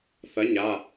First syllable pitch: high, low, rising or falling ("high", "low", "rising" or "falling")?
rising